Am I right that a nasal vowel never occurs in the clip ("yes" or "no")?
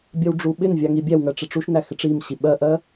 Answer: yes